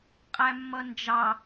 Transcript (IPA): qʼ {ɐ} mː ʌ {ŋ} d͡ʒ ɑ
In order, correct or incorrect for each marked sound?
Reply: incorrect: æ, incorrect: n

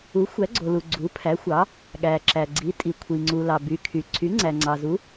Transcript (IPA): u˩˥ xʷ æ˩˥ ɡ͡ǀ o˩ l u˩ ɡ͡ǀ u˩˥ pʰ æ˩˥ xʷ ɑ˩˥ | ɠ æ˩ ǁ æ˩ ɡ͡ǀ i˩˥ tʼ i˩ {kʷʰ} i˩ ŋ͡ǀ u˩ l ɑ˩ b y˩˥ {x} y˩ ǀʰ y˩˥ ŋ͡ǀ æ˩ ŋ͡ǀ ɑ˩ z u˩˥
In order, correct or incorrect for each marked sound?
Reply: correct, incorrect: kʰ

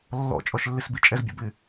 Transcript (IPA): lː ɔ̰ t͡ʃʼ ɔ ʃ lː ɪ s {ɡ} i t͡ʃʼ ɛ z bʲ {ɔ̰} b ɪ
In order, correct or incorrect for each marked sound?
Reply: incorrect: b, correct

